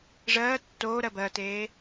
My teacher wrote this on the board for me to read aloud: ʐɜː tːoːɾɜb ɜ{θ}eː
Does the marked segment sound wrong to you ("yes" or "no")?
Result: yes